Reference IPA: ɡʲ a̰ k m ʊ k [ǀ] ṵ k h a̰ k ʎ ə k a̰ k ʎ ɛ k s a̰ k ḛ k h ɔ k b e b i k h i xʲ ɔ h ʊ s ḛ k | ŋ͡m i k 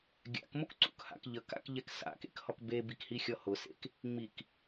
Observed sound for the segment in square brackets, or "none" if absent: ǀ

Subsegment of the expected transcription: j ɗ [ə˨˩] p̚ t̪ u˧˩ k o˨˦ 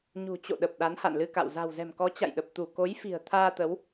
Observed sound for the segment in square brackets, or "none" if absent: ə˨˩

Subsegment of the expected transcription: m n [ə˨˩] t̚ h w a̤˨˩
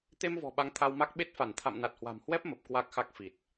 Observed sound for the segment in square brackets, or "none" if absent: a˨˩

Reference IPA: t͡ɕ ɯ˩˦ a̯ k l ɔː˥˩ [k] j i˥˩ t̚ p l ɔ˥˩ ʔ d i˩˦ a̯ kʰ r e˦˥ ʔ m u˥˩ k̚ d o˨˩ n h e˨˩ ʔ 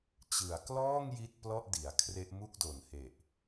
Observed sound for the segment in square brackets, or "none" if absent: ŋ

